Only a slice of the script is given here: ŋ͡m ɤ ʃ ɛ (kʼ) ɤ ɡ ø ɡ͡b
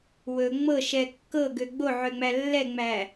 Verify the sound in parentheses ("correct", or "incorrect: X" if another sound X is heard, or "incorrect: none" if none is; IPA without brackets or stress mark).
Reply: incorrect: kː